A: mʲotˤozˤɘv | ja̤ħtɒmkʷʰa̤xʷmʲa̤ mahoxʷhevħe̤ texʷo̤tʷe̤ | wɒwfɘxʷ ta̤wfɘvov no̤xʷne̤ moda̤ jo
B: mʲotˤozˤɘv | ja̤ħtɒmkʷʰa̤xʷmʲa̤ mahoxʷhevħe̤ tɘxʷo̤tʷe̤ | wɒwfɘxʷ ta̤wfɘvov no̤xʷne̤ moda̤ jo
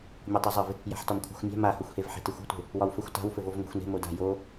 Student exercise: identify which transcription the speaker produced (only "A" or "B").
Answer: A